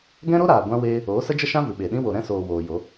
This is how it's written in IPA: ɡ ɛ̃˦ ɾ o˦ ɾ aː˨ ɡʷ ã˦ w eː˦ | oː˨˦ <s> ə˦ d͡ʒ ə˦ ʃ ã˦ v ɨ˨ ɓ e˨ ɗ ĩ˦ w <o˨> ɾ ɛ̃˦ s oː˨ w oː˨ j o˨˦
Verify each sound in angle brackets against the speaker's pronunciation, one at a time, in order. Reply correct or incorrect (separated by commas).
correct, correct